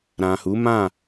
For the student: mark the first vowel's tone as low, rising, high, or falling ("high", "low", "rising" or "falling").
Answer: low